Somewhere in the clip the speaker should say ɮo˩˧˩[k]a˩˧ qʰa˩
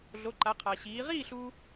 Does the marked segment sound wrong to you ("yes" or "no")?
yes